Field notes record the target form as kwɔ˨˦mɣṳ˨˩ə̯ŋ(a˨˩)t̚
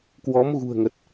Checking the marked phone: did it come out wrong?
yes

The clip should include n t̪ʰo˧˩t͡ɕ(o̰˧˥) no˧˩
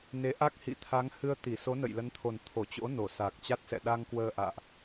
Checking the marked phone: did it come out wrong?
no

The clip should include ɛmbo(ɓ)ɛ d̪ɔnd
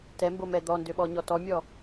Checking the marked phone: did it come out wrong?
yes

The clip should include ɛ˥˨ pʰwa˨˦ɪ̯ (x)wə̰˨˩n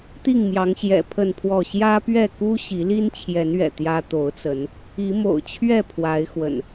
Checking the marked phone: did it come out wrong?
no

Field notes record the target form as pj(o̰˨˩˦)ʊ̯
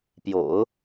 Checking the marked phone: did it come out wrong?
no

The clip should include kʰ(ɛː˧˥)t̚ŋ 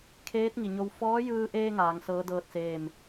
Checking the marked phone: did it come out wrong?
yes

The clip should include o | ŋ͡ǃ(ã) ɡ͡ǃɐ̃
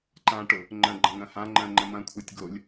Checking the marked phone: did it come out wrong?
yes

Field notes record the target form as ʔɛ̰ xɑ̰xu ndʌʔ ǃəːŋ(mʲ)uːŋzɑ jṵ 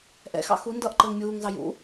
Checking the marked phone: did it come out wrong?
no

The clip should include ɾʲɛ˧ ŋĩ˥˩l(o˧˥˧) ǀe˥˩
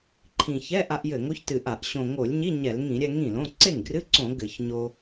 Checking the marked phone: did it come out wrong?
yes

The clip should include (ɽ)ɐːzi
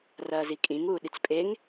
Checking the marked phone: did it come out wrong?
yes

